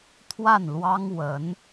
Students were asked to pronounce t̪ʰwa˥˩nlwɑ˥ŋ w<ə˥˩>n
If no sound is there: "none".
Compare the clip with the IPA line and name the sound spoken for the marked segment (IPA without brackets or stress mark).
ə˧˥